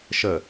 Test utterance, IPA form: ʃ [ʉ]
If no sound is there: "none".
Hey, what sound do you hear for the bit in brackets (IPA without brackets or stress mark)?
ə